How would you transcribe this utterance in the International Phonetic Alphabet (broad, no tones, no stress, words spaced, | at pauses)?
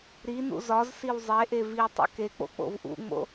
ɾinṵ zɒzsiw zˤeʔev i tˤṵkek͡po̰ k͡po̰vʔṵŋ͡mo̰